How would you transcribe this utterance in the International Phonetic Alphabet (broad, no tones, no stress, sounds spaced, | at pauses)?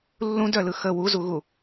lː ũ d œ l ɯ x ə w u z u ɣ u